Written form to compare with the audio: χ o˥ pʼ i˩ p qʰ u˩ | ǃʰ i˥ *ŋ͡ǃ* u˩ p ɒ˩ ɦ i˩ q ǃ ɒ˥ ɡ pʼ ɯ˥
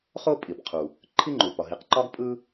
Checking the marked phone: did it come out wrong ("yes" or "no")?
no